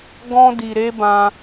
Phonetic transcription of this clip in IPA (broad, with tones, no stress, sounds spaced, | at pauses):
ɡ ɔ̃˧ d i˨ ɾ e˧ b ã˧